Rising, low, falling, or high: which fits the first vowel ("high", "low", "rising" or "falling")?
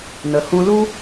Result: low